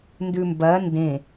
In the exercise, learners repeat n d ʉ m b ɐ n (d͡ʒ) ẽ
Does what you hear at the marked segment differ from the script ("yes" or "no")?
yes